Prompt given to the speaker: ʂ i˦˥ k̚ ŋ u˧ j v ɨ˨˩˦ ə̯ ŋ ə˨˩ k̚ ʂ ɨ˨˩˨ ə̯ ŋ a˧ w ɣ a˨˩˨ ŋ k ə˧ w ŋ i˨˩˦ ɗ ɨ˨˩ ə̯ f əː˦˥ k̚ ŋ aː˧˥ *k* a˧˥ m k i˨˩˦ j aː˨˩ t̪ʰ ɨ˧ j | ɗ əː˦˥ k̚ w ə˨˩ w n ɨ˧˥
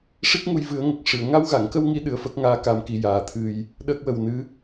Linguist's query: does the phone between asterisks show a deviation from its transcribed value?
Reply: no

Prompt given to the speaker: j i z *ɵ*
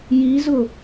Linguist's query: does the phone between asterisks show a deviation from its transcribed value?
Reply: yes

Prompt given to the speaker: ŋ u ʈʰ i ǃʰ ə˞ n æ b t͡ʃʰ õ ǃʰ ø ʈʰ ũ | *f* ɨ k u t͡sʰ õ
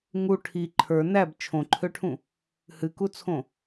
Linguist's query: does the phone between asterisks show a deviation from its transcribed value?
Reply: yes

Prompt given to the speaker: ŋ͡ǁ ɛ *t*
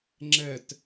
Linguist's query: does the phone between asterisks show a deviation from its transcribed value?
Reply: no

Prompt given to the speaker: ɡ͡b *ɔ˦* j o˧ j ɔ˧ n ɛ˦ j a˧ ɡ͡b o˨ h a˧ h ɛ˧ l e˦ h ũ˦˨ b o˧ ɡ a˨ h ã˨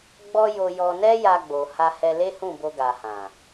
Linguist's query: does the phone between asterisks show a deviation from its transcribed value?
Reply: no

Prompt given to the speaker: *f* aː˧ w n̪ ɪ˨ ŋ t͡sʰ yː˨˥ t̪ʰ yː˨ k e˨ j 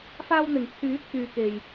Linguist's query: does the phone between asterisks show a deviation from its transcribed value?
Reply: no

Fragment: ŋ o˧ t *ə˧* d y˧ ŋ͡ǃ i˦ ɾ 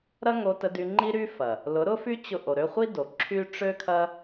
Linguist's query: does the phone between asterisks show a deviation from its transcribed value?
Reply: no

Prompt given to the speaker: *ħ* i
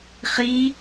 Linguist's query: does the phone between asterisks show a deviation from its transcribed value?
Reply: yes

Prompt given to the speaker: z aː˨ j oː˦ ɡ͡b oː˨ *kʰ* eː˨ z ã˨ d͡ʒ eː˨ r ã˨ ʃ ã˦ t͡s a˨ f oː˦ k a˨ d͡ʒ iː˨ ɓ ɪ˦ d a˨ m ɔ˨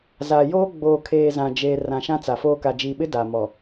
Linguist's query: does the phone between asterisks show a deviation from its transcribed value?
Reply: no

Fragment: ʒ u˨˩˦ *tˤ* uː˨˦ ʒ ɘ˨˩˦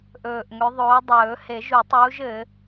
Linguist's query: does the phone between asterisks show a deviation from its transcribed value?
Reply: no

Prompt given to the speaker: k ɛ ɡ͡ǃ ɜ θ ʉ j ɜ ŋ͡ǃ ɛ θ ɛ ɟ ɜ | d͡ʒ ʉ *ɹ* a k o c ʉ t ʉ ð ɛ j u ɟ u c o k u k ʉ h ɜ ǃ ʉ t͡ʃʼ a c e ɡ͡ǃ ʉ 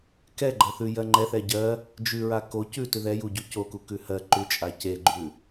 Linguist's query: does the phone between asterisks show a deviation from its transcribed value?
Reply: no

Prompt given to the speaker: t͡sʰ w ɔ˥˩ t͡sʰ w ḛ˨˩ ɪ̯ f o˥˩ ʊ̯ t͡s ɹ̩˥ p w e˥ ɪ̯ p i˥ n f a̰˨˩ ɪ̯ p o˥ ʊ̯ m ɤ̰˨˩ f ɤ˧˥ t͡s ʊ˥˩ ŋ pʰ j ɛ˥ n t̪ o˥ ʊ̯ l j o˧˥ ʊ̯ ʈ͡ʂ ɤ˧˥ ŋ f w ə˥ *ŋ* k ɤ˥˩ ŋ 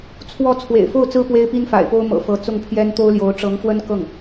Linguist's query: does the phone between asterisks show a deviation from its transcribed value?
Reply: yes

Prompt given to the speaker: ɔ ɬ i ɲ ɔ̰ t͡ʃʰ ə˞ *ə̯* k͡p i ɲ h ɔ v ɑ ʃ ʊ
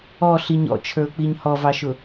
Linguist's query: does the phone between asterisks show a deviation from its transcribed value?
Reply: yes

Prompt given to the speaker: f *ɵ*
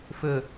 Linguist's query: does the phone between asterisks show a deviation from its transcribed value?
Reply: no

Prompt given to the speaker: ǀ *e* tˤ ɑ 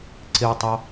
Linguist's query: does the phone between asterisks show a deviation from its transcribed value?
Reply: no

